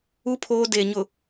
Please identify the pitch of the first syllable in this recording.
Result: high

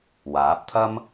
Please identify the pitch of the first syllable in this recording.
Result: rising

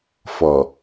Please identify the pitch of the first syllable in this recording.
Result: low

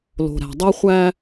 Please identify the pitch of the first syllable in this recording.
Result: low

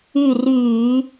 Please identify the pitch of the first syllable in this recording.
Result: falling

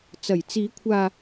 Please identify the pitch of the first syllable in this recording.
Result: low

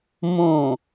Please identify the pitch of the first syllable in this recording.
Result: low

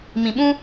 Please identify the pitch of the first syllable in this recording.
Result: low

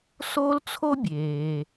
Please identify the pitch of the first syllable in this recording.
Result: high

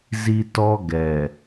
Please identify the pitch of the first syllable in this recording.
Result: high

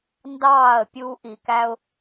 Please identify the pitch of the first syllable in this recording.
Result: falling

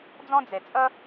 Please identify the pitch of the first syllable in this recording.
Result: high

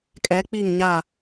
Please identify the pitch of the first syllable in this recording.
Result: rising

